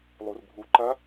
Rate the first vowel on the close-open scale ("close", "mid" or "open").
close